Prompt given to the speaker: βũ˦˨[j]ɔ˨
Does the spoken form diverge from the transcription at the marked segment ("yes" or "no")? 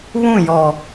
no